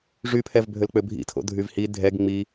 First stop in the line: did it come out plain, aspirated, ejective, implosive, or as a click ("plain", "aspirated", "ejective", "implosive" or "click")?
aspirated